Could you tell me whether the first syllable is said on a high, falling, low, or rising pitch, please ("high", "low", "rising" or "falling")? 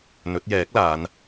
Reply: rising